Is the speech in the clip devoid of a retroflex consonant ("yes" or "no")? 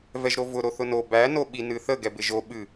yes